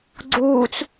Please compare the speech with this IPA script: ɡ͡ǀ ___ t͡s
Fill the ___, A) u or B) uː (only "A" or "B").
B